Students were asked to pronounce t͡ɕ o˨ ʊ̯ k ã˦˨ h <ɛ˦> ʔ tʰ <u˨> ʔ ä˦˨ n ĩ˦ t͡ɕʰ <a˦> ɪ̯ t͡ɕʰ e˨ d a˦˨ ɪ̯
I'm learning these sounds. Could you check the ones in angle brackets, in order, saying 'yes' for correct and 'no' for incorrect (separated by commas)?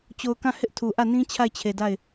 no, yes, no